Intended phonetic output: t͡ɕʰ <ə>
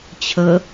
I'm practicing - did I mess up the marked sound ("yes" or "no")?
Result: no